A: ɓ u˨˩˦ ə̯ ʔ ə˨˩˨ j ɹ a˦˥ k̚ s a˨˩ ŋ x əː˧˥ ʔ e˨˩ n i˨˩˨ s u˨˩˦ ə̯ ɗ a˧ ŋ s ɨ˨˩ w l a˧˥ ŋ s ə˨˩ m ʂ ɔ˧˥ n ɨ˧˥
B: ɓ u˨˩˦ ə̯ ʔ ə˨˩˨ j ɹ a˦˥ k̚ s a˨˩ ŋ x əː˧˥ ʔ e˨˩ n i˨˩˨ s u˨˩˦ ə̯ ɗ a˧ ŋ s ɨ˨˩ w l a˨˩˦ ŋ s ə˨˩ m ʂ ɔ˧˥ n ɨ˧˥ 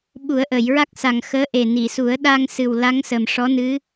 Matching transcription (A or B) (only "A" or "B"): A